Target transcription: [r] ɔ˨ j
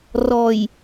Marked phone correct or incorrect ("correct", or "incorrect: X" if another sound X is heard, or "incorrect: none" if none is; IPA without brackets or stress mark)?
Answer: correct